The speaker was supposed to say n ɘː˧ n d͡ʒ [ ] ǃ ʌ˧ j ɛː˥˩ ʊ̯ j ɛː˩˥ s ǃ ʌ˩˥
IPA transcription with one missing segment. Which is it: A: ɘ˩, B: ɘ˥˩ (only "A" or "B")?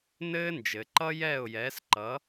A